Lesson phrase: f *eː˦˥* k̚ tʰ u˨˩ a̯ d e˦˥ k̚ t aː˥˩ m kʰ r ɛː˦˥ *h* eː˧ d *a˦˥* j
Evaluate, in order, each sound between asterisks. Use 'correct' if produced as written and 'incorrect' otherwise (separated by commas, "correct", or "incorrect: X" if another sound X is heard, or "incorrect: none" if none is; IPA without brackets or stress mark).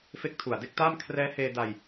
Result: incorrect: e˦˥, correct, incorrect: a˧